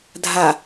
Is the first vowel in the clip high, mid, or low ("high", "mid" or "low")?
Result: low